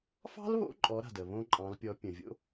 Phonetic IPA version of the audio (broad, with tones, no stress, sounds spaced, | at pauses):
f ɑ̤˥ l β o̰˧˥ ǃʼ ɔ˩˧ ɾ a̤˩ d ə˩ β õ˧ ǃʼ ɑ̃˩˧ l pʲ ɔ˩˧ pʲ ə̃˩ vʲ o̰˧